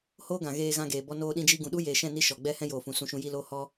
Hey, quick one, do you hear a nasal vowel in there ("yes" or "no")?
yes